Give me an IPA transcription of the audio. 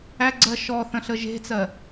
æ ɡ͡ǀ ɜ ʃ ɔ θ ə̃ ɬ ə ʒ e̤ t͡s ɜ

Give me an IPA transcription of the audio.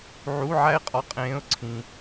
ʕ u˧˥˧ ʕ æ˥ ɪ̯ qʼ ɒ˧˥ qʼ ẽː˧˥ ʊ̯ ǀʰ ĩ˨

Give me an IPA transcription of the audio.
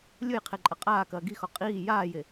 lʲ ʊ j qʰ e ǃʼ ɐ qʼ aː k ɐː ɡ i x ɔ qʼ iː j aː j e

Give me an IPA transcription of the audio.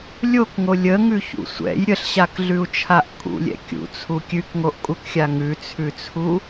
lʲ o k ŋ o lʲ ə ŋ ʉ ç ṵ sʷ ɛ̰ j ɾʲ ə ɬ ɕ a k ɮ ʉ u̯ t͡ʃʰ a ʔ kʼ ṵ lʲ ɛ̰ kʲ ṵ t͡sʰ u kʲ ʉ k ŋ o ʔ kʼ u k xʲ a ŋ ʉ t͡sʰ ʉ t͡sʰ u

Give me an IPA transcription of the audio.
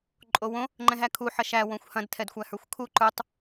ǃʼ o w õ | ŋ͡ǃ ɛ̃ ɦ æ kʰ u ħ ɐ ʃ æ w õ xʷ h ɐ̃ d tʰ ɛ d xʷ æ h ə˞ xʷ kʰ u ǃ ə˞ tˤ

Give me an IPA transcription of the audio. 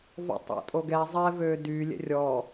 v ɔ̰ tˤ æ̰ tʼ o ɡ ɛ zˤ ɛ v ø d y lʲ ɛ̰ rʲ ɔ

